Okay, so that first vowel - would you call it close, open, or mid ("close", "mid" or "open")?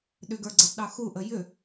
close